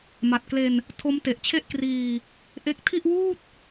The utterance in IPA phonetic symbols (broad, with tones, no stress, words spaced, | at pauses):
ma˨˩t̚kle˧n | tʰo˦˥mte˨˩ʔt͡ɕʰe˥˩ʔkriː˧ | ʔe˦˥k̚ tʰi˥˩ʔwuː˥˩t̚